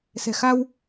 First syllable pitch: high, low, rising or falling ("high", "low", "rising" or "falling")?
low